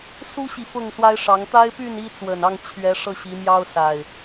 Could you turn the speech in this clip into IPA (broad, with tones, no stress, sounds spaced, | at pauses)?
s u˦ ɕ i˨ f ʊ˥˨ ŋ s w a˦ ɪ̯ ʂ ɑ˨˦ ŋ t̪ a˦ ɪ̯ p y˥˨ n i˦ t͡s w ə˨˩ n ɑ˥˨ ŋ t͡ɕʰ ɥ ɛ˨˦ ʂ ɤ˧ ɕ i˨˦ m j ɑ˦ ʊ̯ s a˨˩ ɪ̯